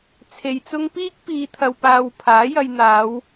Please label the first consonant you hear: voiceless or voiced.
voiceless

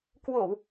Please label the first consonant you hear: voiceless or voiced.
voiceless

